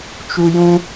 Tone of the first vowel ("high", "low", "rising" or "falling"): high